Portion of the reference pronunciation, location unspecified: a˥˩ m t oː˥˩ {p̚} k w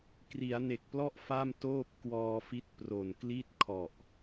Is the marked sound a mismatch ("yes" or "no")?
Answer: no